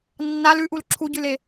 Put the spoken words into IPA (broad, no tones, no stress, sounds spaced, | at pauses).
nː a l ʉ ʔ u l ǁʰ u ɟ ʉ l e